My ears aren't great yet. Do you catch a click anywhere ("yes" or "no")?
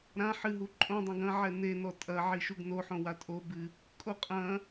yes